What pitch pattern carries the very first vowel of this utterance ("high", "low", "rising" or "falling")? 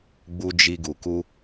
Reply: high